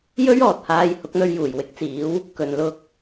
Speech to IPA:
j ɵ˥ ɥ ɔː˨ t̚ h aː˧ j h ʊ˨˥ k̚ n̪ ɵ˧ ɥ j uː˨˩ j w ɪ˨˥ k̚ t͡s iː˨˥ w | k ɵ˨ n l ʊ˧ k̚

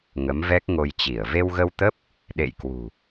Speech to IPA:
ŋ ə˨˦ m v ɛ˦˥ k̚ ŋ o˧ j t͡ɕ i˧˩ ə̯ v e˧ w ɣ ə˧ w t̪ ə˦˥ p̚ | ɗ ḛ˧˨ j k w ṳ˨˩

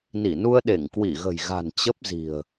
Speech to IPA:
n i˧˩ n u˧ ə̯ ɗ e˧˩ ŋ k w i˧˩ ɣ ə̤˨˩ j ɣ a̤˨˩ n t͡ɕ ə˦˥ p̚ z i̤˨˩ ə̯

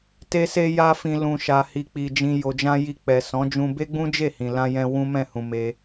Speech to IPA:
t e˧ s e˧ j a˧ f ĩ˨ l ũ˨ ʃ a˨ h i˨ k͡p i˨ d͡ʒ ĩ˧ j o˨ d͡ʒ ã˧ j i˧ k͡p ɛ˨ s ɔ̃˨˦ d͡ʒ ũ˧ b e˦ ɡ͡b ũ˦ d͡ʒ e˦˨ h ĩ˨ l ã˧ j ɛ̃˧ w ũ˦ m ɛ̃˦˨ h ũ˧ m e˧

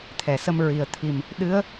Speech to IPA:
t̪ʰ ɛ˨˩˨ s ə˧ m ɹ i˨˩ ə̯ t̪ʰ i˨˩ m | ɗ ɨ˧˥ ə̯

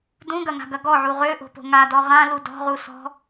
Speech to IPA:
d ũ ɡ ɐ ŋ a̤ ɡ ɐ ɡ ɔ ʕ u ʁ ø ʔ o̤ p o̤ ŋ a d ɔ ʁ ã l u d ɔ̤ ʁ u s ɔ̤

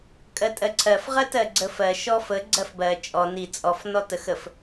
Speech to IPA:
kʼ ɜ tʼ ɜ ǀʰ ɜ f ʁ ɜ t ɜ ɡ͡ǀ ə f ɜ ʃ ɔ f ə ɡ͡ǀ ɜ f b ɜ t͡ʃʼ ɔ n i t͡sʼ ɔ f n ɔ t ə x ə f

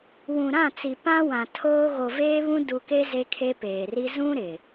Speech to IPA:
w ũ˨ ɾ ã˦˨ t͡s i˨ p ã˦ w ã˨ tʰ oː˦ ɣ o˨ v eː˦ β ũ˦ d u˨ k e˦ z e˦ kʰ e˦ p eː˨ r i˦ z ũ˦ ɾ ɪ˨

